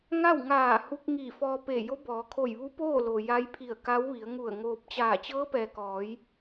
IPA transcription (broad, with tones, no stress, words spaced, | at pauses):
ŋa˥˨wŋaː˧˩hu˧k̚ ŋi˧˩fɔː˧pe˧˩ jo˧˥bɔː˩˧kʰo˧˩j ʋu˧˥poː˥˨ lo˩ja˧˥jpʰi˧˩ə̯ ka˧˥wʋi˩˧ə̯ŋu˧˩ə̯ŋoː˧p̚ t͡ɕaː˧˩ t͡ɕɤː˧˥pɛː˩kɔː˩˧j